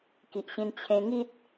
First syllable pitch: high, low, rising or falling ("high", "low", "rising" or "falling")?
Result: low